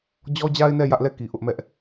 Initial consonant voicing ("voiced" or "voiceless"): voiced